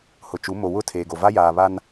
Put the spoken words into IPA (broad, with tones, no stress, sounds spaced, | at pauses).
h ʊ˨ t͡ʃ u˨˦ m o˨ w ʊ˦˨ tʰ eː˨ ɡ o˨ v a˦ j aː˨ β a˦ n